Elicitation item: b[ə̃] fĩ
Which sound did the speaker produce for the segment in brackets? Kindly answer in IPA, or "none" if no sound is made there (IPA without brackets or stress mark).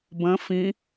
ə̃